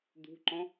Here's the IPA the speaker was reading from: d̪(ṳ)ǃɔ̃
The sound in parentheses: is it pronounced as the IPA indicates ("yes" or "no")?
yes